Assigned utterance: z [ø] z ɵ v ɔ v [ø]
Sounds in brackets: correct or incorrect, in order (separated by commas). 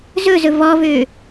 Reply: incorrect, correct